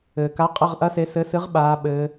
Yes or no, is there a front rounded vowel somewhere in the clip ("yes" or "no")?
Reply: no